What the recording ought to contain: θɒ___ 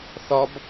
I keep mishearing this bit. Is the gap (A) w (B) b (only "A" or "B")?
B